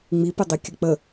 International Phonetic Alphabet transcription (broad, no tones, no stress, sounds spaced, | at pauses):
ŋ͡m i p ɪ dˤ i kʲ ə k͡p ə